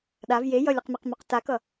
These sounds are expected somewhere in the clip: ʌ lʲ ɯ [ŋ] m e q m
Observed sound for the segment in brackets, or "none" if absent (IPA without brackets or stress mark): q